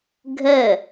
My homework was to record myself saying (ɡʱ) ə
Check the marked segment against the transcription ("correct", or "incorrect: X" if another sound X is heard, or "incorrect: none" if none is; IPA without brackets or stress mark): correct